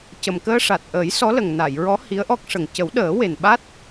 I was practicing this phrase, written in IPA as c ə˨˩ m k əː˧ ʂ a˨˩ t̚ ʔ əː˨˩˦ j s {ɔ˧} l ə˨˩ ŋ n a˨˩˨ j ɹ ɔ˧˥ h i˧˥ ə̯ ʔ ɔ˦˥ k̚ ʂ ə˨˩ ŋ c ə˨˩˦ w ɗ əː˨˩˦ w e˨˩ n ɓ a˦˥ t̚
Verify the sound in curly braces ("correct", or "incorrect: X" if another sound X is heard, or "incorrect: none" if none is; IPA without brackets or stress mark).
incorrect: ɔ˧˥